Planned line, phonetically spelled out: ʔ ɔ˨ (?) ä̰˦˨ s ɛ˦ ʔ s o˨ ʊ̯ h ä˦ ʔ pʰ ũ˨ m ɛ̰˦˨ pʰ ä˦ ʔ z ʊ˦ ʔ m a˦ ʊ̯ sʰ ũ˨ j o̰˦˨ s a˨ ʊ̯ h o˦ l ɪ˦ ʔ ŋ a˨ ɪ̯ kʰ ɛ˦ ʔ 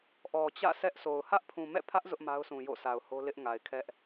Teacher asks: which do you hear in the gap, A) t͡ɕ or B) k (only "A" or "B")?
A